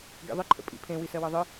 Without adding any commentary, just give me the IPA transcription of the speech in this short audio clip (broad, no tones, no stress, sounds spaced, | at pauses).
ɡ ḭ ðˤ ɨ ǃʰ ə̰ pʼ ḭ pʰ ẽ w i s ɜ w ɤ ðˤ ɨ